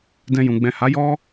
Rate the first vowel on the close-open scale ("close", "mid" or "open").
mid